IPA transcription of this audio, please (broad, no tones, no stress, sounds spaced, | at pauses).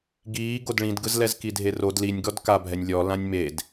ɡ iː ɡ o d ɭ ĩ d ɡ ɯ z l ɛ z k i dʱ e r o d l i nʲ ɡ ɔ d k a bʱ ɛ nʲ lʲ ɔ l ã nʲ m e d